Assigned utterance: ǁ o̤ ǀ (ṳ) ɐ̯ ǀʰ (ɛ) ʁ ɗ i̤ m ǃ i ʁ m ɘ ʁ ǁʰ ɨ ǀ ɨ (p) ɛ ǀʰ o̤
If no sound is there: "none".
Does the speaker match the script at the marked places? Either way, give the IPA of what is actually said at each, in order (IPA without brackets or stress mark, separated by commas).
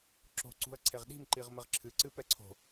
ṳ, e, p